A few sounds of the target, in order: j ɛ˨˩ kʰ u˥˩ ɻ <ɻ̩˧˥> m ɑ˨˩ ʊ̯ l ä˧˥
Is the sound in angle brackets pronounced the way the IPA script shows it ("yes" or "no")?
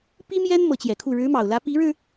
yes